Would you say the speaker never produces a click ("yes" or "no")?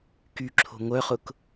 no